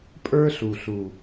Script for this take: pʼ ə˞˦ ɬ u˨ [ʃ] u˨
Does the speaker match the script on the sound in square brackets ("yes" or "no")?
no